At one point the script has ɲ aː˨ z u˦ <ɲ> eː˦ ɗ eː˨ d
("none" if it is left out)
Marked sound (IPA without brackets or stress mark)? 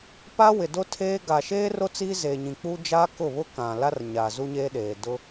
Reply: ɲ